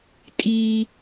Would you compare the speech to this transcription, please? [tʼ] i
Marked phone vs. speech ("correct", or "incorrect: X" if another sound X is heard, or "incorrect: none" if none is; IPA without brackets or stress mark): correct